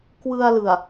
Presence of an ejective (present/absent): absent